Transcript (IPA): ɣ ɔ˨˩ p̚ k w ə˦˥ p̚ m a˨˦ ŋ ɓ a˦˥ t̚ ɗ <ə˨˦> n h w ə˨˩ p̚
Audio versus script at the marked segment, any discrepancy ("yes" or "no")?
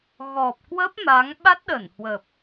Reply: yes